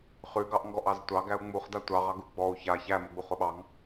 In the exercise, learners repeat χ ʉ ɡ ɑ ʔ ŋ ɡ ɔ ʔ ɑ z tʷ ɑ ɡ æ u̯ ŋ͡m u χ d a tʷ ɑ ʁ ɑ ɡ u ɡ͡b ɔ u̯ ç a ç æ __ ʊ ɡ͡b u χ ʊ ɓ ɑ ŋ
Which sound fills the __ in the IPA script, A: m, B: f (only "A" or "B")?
A